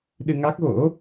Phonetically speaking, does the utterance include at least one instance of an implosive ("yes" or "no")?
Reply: yes